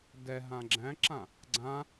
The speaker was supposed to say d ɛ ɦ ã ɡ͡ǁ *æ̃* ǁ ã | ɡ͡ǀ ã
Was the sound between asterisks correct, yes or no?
yes